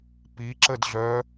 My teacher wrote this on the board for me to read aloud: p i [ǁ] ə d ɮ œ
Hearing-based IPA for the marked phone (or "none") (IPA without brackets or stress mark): ǁ